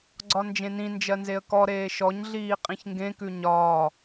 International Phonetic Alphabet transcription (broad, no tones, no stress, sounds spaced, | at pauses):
ɡ͡ǀ ɒ n d͡ʒ ẽ n ĩ n d͡ʒ ɜ n z e ə̯ k ɔ ɾ eː ʃ ɔ ɲ ɮ iː qʼ ĩ ç ŋ ɡ ẽ k ʉ ɲ ɒː